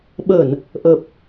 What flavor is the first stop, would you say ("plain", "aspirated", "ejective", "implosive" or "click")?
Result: implosive